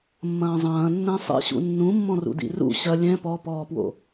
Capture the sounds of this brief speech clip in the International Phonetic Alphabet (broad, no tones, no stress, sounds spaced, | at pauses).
mː ɐ̃ː zˤ ɐ̃ː nː ɛ̃ sˤ ɛ̰ ɕ ṵ nː ũ mː ɔ̃ r ṵ d ḭ r ṵ ɕ ɐ lʲ ɛ̃ p ɔ p ɔː p w o̰